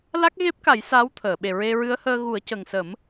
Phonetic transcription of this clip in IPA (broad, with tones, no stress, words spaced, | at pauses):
la˦˥k̚ɣe˦˥p̚ka˨˩˦j saː˧˥wt̪ʰəː˨˩˨ ɓe˨˩ɹe˧ ɹɨ˧˥ə̯həː˧ɣu˨˩˦ə̯ cə˨˩ŋsə˨˩˦m